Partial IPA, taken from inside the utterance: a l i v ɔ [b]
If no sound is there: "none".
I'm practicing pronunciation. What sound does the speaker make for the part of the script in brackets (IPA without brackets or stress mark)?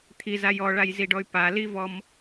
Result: m